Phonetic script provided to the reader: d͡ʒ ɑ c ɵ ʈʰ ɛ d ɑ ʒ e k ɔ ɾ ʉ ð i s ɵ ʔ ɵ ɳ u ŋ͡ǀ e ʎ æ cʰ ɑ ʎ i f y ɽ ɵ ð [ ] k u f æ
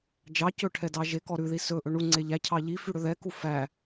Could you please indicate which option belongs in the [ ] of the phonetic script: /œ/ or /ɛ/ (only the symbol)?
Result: ɛ